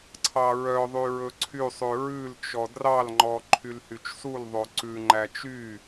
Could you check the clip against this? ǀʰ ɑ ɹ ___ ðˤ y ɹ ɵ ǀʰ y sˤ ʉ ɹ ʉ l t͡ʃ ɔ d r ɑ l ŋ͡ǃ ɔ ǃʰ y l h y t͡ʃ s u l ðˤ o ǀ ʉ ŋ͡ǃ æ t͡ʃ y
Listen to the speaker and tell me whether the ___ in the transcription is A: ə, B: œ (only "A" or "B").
B